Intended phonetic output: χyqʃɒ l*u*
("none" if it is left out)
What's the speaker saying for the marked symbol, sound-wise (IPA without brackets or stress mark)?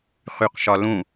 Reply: ũ